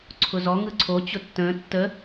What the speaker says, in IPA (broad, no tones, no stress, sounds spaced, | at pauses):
ǀʰ ʊ z ɔ ŋ ɯ ǀʰ o t͡ɕ ʊ tː ə̃ː tː ə